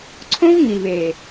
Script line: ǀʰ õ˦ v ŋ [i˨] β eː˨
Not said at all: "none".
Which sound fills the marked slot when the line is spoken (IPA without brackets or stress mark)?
i˨